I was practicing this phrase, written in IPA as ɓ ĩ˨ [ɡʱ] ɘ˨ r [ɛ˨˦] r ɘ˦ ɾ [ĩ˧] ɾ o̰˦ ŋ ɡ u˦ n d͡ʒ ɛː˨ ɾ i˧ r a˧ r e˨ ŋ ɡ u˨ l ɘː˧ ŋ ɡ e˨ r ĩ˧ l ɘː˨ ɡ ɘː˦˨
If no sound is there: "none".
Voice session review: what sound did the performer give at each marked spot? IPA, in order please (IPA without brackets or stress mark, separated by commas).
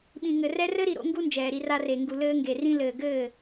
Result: ŋ, ɛ˧, i˧